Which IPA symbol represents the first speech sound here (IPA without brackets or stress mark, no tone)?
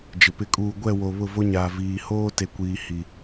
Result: d͡ʒ